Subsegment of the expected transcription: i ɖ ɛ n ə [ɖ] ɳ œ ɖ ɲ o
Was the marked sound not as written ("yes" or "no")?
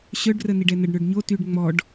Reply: no